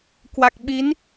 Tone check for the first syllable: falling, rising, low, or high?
low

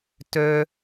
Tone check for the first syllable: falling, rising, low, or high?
high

